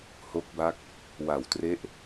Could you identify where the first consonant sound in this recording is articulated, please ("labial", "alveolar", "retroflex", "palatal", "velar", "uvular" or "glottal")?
glottal